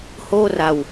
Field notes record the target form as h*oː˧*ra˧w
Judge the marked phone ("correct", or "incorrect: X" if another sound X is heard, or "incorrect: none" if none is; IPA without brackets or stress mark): incorrect: oː˥˩